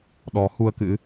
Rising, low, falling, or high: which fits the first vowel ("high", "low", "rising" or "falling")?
rising